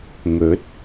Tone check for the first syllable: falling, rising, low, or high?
rising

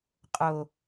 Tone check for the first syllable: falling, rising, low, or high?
low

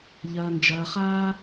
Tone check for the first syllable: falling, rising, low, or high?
low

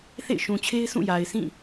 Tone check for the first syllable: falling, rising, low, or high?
falling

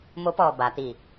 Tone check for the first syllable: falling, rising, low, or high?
rising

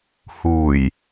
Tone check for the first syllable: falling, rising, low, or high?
low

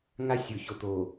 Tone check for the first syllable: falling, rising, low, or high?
high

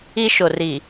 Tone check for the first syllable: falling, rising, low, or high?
high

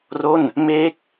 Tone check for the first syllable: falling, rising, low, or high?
falling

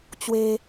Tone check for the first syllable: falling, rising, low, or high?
high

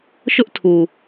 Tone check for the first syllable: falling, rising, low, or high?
high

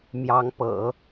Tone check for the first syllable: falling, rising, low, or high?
rising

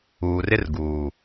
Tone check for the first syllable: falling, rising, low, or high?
low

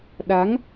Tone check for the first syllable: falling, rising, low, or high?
rising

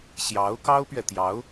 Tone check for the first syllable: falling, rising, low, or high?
rising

